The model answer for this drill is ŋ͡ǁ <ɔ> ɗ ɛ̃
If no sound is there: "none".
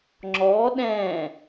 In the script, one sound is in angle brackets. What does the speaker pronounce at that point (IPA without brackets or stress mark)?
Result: ɔ